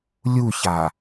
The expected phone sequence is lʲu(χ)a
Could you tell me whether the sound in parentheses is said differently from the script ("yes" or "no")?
yes